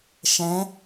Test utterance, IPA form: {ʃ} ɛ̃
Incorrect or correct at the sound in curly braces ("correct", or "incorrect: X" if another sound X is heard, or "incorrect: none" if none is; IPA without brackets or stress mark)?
correct